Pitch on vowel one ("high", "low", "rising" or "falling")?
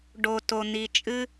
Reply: low